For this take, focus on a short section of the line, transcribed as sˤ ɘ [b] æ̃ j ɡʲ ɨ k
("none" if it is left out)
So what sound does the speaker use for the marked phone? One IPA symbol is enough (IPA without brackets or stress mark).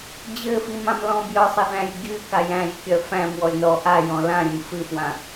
ð